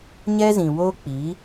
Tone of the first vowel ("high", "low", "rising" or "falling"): high